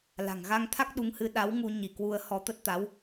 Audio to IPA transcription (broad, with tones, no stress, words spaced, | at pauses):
la̤˨˩ŋɣa˧ŋt̪ʰa˦˥k̚ ɗu˨˦ŋhɨ˧ ɗa˨˦w ŋu˧ ɲi˧˩ kwu˧ə̯hɔ˧t̪ə˦˥t̚t̪a˨˦w